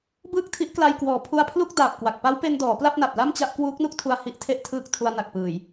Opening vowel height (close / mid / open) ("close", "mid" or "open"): close